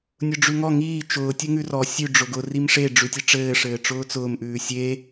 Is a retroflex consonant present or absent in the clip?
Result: present